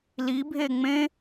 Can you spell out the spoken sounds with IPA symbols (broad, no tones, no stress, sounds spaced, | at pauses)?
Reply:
l i bʱ e ŋ͡m ẽ